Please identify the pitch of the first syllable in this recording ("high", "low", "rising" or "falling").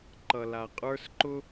low